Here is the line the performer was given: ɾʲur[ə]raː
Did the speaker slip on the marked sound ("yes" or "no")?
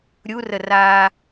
no